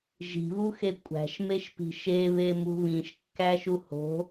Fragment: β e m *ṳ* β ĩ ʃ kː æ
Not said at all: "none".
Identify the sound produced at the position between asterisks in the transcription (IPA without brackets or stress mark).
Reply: ṳ